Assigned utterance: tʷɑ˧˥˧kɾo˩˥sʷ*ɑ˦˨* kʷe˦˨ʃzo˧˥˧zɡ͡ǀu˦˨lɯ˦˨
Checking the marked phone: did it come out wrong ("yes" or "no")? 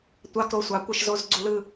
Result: yes